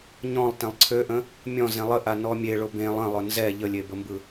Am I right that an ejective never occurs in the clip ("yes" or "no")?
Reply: yes